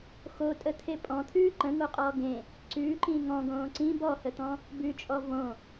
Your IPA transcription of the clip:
x o tʼ ə t̪ʰ e pʼ ɔ̃ t̪ʰ ʉː ǃ ə̃ ŋ o qʼ ɔː ɡ ẽ | ǀ ʉː ǃ ĩː ŋ ɔ̃ ɡ õː ǀ ĩ b ɔ h ə t̪ ɔ̃ | b ʉ t͡ʃʼ ɔ v õ

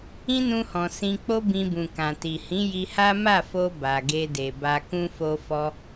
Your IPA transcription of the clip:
ĩ˦ n ũ˧ h ɔ̃˨ s ĩ˧ k͡p o˦ b ĩ˧ b ũ˨ k ã˨ t i˨ h ĩ˨˦ j i˧ h a˦ m a˦˨ f o˧ b a˨ ɡ e˧ d e˨ b a˧ k ũ˧ f o˧ f ɔ˧

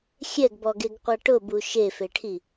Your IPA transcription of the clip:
xʲ ɛ ɡ b ɔ ɡ e ɡ qʷ a ʈ ʊ b u ʃ e f e ʈʰ i

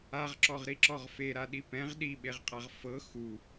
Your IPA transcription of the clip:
a ʁ ǁ ɔ ʁ ɾ i ǁ ɔ ʁ f e ɾ a ɗ i p ɛ̃ ʁ ɗ i ɓ e ʁ qʼ a ʁ f ɤ x u

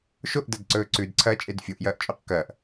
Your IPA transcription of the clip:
ʃ o ʔ d ɐ d ǀ ɵː ǀ ʉ d ǀʰ ɐː t͡ʃʼ e d fʲ o ʔ j ɐː ʔ t͡ʃʼ o q k ɐː ʔ

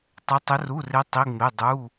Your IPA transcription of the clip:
tˤ e˧˥ tˤ ə˧˥ r u˧˥˧ r e˧˥ tˤ i˧˥˧ ŋ͡m e˧˥˧ dˤ u˧˥˧

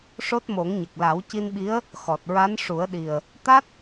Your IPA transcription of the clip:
ʂ o˦˥ t̚ m o˨˩˦ ŋ ɲ ə˨˩ k̚ l a˨˩˦ w c i˧ n ɓ i˧˥ ə̯ | x ɔ˨˩ t̚ ɹ a˧˥ n ʂ u˨˩˦ ə̯ ɗ i˨˩ ə̯ | t̪ a˦˥ t̚

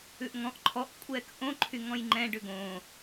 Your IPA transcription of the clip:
ʉ ʔ ŋ ɔ̃ ʔ ǃʰ ɔ ʔ kʷʼ ɛː k ʔ õ ǃʰ y ŋ ɔ̃ j ŋ͡ǃ ɛ̃ ɖ ʉ ɡ õː

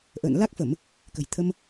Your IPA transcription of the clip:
ʔ ə̰ː˧˨ n l a˦˥ k̚ f ə˧˩˨ m | k ə̤˨˩ j t̪ʰ ə˧ m

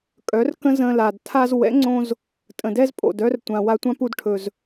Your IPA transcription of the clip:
kʼ œ˨˦ r k ə̃˦ z ə̃˧ l a˨ d tʰ a˧ z w ɛ̰˨˦ ŋ͡ǀ õ˧ z | tʼ ə̃˨ d ɛ˦ z pʼ o̰˨ d œ˦ r tʷ ã˨ w a˧ tʷ ã˦ p u˧ d ʈʰ ɵ˨ z

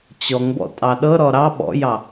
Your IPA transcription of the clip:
t͡ɕ ɔ ŋ b ɔ̰ tʼ ɑ ɗ ɤ ɾ ɔ ɾ ɑ ɓ ɔ̰ j ɑ

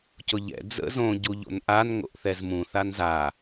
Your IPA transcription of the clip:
c ʊ ʎ ɛ̰ d͡z ə̰ z õ ɟ u ʎ o̰ n ʔ a n ŋ o̰ ʔ θ ɛ z m ũ θ a n z a

